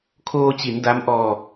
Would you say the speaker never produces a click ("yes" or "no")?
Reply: yes